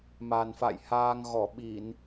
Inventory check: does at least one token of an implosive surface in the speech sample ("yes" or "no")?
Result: yes